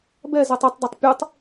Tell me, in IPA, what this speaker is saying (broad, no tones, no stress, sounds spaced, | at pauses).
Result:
b ɛ z ɛ tˤ i tˤ d a tˤ pʲ ɯ tˤ